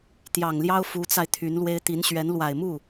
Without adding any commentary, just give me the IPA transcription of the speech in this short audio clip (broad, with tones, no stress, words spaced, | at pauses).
t̪jɑ˨˩ŋljɑ˥ʊ̯ fu˧˥t͡sa˧ɪ̯ t̪ʰy˧˥nlwe˥ɪ̯ t̪i˧˥nɕɥɛ˧˥n lwa˨˩ɪ̯mu˥˩